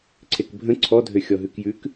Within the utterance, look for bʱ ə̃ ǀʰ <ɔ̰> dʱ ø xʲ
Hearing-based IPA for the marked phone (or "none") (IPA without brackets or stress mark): ɔ